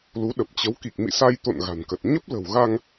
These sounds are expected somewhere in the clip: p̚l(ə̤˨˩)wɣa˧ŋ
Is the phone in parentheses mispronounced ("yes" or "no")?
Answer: no